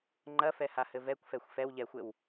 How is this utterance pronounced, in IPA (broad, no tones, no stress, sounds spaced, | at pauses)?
ŋ͡ǃ ɐ f ɛ h a h ɘ v ɛ kʷ f ɛ xʷ f ɛ w ʎ ɛ xʷ ɘ w